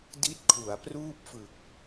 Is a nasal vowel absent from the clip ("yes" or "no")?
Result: yes